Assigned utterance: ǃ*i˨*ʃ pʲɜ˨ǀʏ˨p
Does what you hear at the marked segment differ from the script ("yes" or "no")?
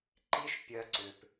yes